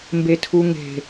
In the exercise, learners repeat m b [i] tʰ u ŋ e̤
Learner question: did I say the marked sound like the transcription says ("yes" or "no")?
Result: no